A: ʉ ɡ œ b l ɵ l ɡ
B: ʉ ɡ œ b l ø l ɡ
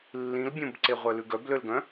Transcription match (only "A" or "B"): B